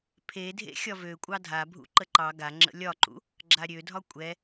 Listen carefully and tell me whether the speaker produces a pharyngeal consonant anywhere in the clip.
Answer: no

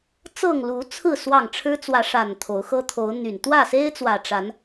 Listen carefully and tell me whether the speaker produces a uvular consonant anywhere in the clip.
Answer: no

